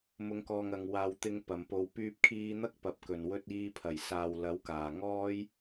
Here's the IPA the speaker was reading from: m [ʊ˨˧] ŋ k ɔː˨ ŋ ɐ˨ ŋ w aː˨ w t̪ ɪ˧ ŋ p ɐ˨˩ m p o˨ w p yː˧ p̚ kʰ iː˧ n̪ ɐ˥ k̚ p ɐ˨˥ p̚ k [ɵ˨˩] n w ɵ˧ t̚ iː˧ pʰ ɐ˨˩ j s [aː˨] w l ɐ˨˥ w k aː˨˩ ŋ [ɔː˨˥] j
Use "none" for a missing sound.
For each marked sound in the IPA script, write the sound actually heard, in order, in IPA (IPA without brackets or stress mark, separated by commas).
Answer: ʊ˨˧, ɵ˨˩, aː˨, ɔː˥